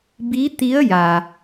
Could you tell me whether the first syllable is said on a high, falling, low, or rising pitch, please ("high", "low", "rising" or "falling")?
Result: rising